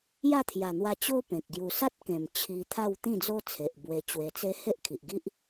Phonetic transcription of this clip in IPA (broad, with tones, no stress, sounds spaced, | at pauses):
j a˥˧ t̪ʰ j a˨˩ n̪ w a˧ t͡ɕ o˦ p ẽ˨ k̚ ɡ j u˨˩ s a˦ t̚ k ẽ˨˩ m t͡ɕʰ i˧ t̪ʰ a˥˧ w t̪ ĩ˥˧ d͡z o˦ t͡sʰ e˨ ʔ b w e˧ t͡ɕ w e˧ t͡s e˦ h e˦ ʔ kʰ i˨ ʔ ɡ i˦ ʔ